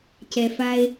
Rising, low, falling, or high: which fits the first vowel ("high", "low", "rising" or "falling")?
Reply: low